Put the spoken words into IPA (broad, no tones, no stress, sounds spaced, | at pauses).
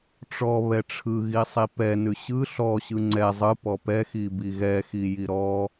ʈ͡ʂ ɔ β ɛ ʈ͡ʂʰ ɯ ɣ i sˤ i p ɛ n ʉ ɕ ɯ ɬ ɔ ɕ ɯ ŋ͡ǀ ɛ zˤ ɯ p ɔ p ɛ x i b i ɣ ɛ x i j i ɾ ɔ